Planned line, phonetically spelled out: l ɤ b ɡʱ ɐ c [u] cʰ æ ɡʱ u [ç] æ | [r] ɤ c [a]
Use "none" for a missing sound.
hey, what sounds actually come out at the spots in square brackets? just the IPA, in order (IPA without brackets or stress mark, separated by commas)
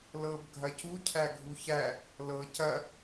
u, ç, l, ɐ